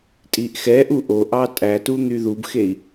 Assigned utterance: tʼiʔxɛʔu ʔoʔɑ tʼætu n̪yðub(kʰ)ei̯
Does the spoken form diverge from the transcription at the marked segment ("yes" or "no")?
yes